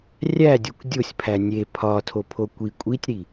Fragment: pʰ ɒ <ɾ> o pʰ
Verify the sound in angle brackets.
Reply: incorrect: tʰ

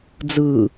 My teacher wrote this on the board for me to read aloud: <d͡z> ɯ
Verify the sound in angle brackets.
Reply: correct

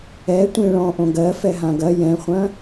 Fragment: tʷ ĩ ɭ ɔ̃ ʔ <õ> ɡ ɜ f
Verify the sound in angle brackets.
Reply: correct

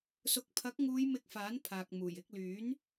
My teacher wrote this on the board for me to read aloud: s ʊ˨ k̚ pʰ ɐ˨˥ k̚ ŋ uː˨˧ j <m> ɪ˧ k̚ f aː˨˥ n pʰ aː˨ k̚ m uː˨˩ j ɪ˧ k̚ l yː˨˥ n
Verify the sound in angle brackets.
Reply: correct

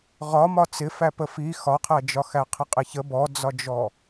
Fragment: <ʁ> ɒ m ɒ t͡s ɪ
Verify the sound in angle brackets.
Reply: correct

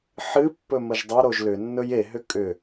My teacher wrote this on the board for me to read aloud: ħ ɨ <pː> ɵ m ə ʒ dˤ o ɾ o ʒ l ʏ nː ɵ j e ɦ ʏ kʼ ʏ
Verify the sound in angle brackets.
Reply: correct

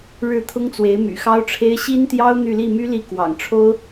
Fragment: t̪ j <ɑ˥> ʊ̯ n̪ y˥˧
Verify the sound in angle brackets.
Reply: correct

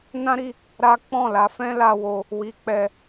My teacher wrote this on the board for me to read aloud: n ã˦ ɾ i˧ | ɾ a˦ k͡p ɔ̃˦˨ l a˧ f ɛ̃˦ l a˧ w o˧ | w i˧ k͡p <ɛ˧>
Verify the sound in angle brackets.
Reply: correct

